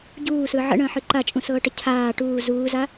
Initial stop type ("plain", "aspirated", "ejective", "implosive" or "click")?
plain